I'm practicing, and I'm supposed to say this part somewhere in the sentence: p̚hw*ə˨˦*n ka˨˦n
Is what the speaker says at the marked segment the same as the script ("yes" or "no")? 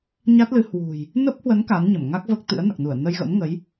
yes